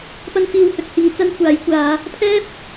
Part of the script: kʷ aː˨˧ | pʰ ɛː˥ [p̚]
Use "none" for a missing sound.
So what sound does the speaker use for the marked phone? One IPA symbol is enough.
p̚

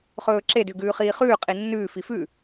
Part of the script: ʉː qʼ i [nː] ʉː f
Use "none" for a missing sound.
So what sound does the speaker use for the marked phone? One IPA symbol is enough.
nː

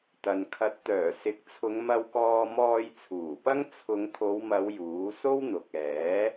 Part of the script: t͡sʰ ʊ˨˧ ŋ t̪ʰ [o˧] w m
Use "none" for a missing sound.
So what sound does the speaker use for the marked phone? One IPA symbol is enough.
o˨˧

